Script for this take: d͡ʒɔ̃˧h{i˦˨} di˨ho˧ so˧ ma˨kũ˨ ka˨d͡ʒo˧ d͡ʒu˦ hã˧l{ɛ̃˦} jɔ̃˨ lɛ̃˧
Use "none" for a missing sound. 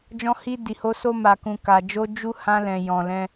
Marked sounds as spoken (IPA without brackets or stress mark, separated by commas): i˧, ɛ̃˨